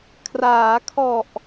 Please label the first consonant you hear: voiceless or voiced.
voiceless